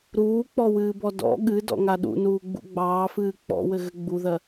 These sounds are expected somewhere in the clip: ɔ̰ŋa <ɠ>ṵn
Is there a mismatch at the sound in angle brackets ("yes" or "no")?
yes